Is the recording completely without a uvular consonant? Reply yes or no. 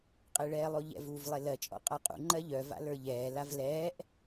no